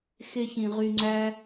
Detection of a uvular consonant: present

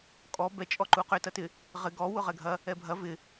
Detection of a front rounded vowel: present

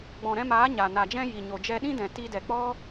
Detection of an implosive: present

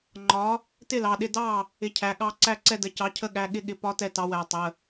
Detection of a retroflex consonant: absent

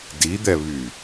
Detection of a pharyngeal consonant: absent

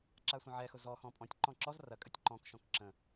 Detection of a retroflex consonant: absent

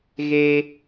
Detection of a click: absent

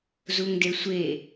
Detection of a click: absent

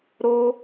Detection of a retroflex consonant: absent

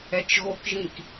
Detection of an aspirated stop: absent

